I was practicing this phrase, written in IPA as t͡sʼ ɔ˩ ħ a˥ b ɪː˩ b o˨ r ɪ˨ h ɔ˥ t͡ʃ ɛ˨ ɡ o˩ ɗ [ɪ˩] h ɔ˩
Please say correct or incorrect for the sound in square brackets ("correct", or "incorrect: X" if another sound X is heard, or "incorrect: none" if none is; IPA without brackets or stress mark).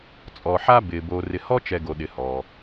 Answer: correct